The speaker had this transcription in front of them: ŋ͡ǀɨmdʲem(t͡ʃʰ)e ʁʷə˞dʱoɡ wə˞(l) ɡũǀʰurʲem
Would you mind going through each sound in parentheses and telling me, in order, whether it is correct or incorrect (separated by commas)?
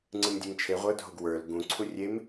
correct, correct